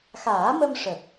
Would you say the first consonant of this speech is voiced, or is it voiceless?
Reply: voiceless